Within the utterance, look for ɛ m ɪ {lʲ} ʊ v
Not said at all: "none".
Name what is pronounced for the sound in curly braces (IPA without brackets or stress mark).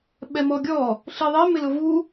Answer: l